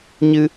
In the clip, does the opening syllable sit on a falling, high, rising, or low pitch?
high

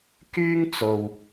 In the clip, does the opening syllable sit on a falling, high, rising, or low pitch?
high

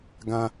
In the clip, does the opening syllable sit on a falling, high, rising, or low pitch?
high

